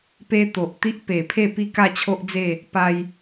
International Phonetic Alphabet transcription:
p e˦ t̪ o˨ ʔ t̪ i˦ ʔ p e˨˩ pʰ e˥˧ p i˥˧ k a˥˧ t͡ɕʰ o˦ ʔ d͡z e˥˧ | p a˧ j

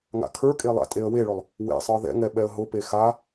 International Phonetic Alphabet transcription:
ŋ a̰ kʰ ə˞ kʼ e lˠ a̰ tʼ e ə̯ w e ɭ ʊ lˠ | w ḛ sˤ ə˞ ð ɛ̰ ŋ ɛ ɓ ɛ ə̯ ɦ ʊ p e x a

